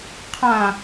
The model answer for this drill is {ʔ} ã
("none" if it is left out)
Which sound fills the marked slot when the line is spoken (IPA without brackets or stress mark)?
qʰ